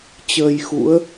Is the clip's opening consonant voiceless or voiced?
voiceless